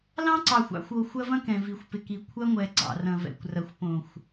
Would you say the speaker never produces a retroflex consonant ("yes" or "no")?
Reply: yes